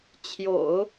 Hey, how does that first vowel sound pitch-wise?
low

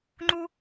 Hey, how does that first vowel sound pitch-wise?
high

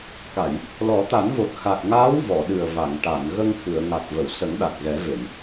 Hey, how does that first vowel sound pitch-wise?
low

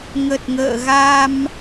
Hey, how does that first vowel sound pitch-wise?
low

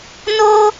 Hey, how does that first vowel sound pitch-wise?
high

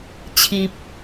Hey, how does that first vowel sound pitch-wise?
low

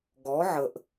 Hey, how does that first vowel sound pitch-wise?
rising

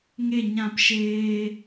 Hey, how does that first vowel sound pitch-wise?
falling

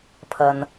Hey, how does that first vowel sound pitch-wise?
low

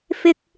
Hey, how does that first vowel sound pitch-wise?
high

